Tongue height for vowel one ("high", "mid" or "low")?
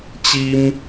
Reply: high